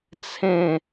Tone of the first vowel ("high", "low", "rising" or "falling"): falling